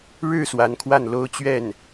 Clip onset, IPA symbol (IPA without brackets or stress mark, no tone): ɻ